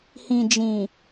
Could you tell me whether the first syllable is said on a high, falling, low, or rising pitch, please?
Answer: low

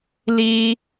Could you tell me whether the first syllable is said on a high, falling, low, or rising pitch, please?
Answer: high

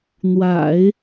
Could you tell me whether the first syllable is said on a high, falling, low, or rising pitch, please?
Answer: low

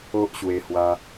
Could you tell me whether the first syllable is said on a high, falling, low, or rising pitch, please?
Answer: high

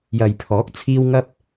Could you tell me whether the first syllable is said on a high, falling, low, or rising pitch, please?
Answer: low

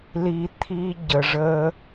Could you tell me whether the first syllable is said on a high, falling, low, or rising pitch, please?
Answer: low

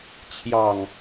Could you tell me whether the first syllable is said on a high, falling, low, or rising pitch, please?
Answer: low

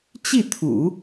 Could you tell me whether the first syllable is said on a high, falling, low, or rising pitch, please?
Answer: falling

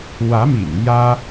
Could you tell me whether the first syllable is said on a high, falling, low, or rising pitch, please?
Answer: rising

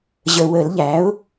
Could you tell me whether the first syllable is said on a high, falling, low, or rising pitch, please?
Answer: low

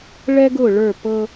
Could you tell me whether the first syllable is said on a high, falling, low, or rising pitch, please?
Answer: high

